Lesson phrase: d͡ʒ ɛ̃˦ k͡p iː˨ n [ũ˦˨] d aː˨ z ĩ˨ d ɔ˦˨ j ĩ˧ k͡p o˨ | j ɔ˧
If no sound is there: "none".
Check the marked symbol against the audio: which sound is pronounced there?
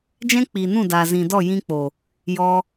ũ˦˨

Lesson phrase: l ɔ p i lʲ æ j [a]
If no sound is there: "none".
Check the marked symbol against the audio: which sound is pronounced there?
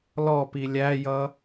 ʌ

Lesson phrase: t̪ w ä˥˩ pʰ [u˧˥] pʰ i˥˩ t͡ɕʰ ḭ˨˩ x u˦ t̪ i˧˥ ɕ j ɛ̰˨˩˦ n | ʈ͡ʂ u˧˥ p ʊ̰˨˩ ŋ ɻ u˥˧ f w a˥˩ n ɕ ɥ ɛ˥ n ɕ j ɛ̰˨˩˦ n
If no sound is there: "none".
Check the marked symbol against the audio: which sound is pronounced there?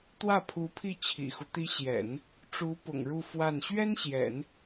u˧˥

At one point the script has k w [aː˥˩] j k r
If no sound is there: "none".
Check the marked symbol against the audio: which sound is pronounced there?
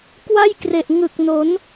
a˥˩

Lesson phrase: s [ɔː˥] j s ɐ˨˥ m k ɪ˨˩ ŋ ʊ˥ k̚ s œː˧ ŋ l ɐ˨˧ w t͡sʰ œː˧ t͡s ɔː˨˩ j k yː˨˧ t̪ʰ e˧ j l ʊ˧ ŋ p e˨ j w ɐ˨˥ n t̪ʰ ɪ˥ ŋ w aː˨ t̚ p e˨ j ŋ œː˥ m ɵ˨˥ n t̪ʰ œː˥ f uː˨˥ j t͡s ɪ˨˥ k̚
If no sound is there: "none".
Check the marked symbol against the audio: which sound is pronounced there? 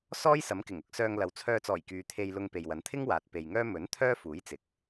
ɔː˥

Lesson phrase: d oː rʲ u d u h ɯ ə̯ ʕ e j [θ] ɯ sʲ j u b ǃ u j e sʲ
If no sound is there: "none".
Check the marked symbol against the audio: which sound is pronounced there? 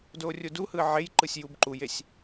ǃ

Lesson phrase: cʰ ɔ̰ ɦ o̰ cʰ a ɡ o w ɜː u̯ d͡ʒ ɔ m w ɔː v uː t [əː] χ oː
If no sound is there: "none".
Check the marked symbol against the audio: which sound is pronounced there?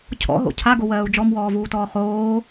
ɔː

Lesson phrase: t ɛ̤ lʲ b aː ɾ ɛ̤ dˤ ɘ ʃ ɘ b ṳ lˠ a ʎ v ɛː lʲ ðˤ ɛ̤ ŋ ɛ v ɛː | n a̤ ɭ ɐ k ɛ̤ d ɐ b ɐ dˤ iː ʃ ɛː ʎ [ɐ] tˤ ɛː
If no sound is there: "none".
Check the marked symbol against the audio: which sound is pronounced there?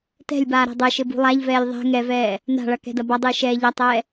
ɐ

